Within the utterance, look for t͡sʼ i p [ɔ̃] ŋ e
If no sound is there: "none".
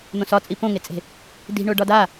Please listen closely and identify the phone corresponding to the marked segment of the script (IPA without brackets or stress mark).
õ